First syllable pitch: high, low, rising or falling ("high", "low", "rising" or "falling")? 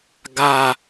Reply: high